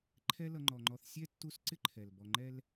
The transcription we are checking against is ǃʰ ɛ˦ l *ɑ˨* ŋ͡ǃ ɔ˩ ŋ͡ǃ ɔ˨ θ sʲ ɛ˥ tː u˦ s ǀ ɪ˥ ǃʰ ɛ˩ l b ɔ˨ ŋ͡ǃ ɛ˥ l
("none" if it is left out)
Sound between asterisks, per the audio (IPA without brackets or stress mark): ʌ˨